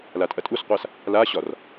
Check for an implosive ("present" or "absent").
absent